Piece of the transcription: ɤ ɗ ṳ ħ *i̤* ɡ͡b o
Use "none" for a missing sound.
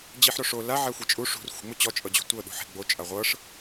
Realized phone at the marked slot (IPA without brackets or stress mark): e̤